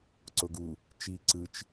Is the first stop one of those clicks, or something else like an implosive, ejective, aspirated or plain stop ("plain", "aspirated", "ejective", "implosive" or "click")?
click